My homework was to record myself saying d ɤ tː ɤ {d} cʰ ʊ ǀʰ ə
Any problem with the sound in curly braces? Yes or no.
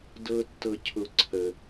yes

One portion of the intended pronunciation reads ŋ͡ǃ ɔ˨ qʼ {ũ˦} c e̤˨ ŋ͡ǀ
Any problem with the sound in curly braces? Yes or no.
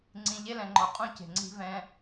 no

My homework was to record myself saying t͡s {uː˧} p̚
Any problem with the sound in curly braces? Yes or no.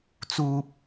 yes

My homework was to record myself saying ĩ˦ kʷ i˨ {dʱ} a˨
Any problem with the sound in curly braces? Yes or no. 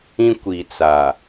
yes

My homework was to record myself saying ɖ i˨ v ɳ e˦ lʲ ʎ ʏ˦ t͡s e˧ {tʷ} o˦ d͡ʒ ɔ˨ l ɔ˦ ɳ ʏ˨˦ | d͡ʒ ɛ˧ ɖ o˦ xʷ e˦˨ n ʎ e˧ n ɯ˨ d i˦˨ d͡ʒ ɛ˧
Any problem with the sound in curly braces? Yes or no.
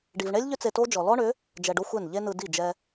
yes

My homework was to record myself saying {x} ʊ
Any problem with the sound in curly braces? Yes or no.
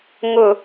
yes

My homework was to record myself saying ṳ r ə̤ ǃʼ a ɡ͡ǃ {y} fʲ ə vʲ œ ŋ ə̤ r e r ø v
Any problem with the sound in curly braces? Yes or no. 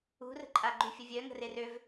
no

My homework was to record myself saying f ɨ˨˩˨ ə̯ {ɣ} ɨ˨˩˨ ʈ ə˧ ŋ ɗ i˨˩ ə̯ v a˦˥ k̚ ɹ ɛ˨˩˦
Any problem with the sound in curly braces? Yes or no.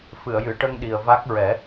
yes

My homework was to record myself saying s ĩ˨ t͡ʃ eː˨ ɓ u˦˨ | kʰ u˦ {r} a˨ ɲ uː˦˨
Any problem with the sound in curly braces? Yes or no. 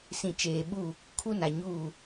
yes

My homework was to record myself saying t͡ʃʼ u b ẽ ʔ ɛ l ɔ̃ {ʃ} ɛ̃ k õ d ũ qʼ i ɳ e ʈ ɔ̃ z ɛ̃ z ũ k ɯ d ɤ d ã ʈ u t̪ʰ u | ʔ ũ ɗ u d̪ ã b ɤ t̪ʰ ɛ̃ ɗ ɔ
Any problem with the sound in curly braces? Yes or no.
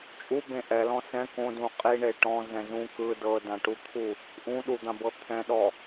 yes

